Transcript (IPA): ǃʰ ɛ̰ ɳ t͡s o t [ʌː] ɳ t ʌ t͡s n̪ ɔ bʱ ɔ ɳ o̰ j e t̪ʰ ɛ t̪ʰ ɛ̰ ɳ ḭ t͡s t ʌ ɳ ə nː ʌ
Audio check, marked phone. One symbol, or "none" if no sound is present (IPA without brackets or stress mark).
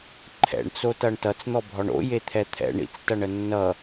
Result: ʌ